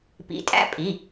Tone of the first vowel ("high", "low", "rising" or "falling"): rising